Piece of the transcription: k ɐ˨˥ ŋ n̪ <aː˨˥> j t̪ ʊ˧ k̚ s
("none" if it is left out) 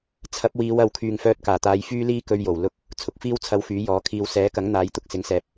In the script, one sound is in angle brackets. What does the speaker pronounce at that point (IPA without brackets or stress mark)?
aː˨˥